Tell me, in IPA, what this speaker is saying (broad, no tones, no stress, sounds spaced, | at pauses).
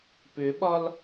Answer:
p ʏ ɓ ɒ l